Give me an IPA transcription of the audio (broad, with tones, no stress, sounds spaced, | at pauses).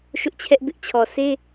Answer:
ʃ ʊ˦ ʔ t͡ɕʰ ɛ˦ ʔ b ɪ˦ ʔ t͡ɕʰ ɔ˨ s e˦